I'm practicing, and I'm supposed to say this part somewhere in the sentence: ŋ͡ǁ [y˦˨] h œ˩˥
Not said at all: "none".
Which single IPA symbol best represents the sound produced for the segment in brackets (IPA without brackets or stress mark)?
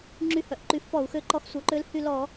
y˦˨